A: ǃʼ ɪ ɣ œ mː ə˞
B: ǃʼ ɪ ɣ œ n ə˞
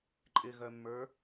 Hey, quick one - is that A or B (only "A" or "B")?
A